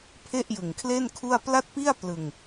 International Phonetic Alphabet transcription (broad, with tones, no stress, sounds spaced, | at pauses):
pʰ e˥˩ ʔ j ɯ˨˩ ŋ kʰ l e˥˩ n kʰ u˥˩ a̯ p l a˥˩ t̚ p i˥˩ a̯ p l ɯ˧ ŋ